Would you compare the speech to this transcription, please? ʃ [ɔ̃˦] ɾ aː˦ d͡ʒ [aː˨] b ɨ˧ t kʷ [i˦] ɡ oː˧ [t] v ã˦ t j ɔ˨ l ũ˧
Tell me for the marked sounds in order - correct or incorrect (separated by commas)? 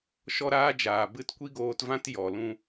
incorrect, correct, correct, correct